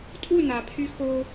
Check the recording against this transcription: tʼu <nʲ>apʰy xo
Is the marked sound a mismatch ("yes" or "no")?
yes